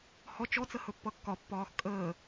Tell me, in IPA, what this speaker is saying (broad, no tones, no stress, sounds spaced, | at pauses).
h ɔ t͡ʃ ɔ t͡s ə h ɵ pː ʌ kː ɒ pː ɒː x kʼ əː